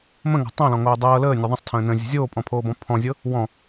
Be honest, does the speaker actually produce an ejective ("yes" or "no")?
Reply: yes